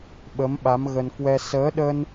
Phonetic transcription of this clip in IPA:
ɓ ə˨˦ m ɓ a˨˦ m ɣ ə˧ n k w ɛ˧ s əː˨˦ ɗ ə˧ n

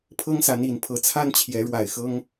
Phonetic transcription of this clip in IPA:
pʰ ɤ˦ ŋ s a˨˦ n i˨˩ n pʰ ɤ˨˦ t͡sʰ a˦ n t͡ɕʰ j ɛ˨˦ ɻ w a˨˩ ɪ̯ x ɤ˦ ŋ

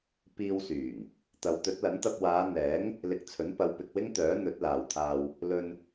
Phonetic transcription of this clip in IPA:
p iː˧ w s yː˨˩ ŋ | t̪ ɐ˨˧ w t̪ ɵ˨˥ t̚ l ɐ˨˥ n t̪ ɐ˧ p̚ w aː˨˧ n̪ ɛː˨˥ ŋ | l ɪ˧ k̚ t͡sʰ ɵ˨˥ n p ɐ˨˧ w p ɪ˨ k̚ w ɪ˥ ŋ t̪ œː˨˥ n̪ ɵ˨˥ t̚ l aː˨ w t̪ʰ aː˧ w | l ɵ˧ n

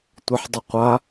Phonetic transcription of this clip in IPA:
tʷ ə ħ dˤ ə qʷ a

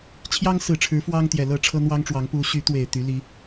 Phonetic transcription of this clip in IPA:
t͡ɕʰ j ɑ˦ ŋ s ɹ̩˨˩ ʈ͡ʂʰ ɻ̩˨˦ f w ɑ˦ ŋ t̪ j ɛ˨˩ l ɤ˥˨ ʈ͡ʂʰ ɤ˦ n̪ w ɑ˦ ŋ ʈ͡ʂ w ɑ˨˦ ŋ p u˨˦ ɕ y˨˦ t̪ w e˨˩ ɪ̯ t̪ y˨˦ l i˨˦

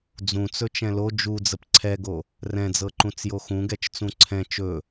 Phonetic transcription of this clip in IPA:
d͡z ũ t͡s ɵ t͡ʃ ɛ̃ l o d͡ʒ u d͡z ə p ǀʰ ɛ ɡ o | r ɛ̃ d͡z ɤ ǃ ũ t͡s j o x ũ ɡ ɛ t͡ʃ t͡s ũ ǀʰ ɛ̃ t͡ʃ ɵ

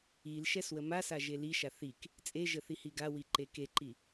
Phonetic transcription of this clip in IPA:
i l ʃ ɛ s w ə m a s a ʒ e l i ʃ a θ i k | t͡sʼ e ʒ ə θ i h i ɡ a w i ǃ e k e ǃ i

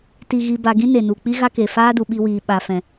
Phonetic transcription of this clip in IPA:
t i˧ ɣ i˧ b a˧ ɡ ĩ˦ n e˨ n u˨ k͡p i˦ ɣ a˦ k e˨ f aː˦ d u˨ ɓ i˧ w iː˨ ɓ a˨ f ɛ̃˨

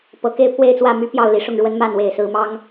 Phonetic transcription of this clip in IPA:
p ɤ˨˩ k e˥˨ ɪ̯ pʰ w e˥˨ ɪ̯ t͡s w ä˥˨ m y˦ p j ɑ˥˨ ʊ̯ l i˨˦ ʂ ʊ˥˨ ŋ ɻ w ə˦ n m a˥˨ n w e˨˩ ɪ̯ s ɹ̩˨˦ m ɑ˦ ŋ

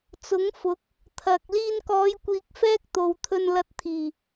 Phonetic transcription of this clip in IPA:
t͡s ʊ˨˥ ŋ f ʊ˨˥ k̚ | t̪ʰ ɐ˨ k̚ l iː˧ n k ɔː˨˧ j kʷ iː˨ k̚ f ɛː˥ k̚ t̪ o˨ w t̪ʰ ɵ˧ n l ɐ˧ t̚ t̪ʰ iː˨˩

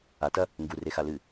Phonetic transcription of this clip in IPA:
a t ɐ | ŋ ɡ u r e x a l ɨ

